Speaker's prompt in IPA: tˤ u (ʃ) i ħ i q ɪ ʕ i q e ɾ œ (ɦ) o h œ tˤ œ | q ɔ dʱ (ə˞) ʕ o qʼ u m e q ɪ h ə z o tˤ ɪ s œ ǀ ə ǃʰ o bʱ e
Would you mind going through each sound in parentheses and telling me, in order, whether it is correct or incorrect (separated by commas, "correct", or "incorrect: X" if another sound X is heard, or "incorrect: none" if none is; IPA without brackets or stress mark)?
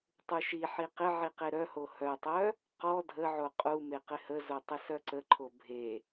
correct, incorrect: h, incorrect: ə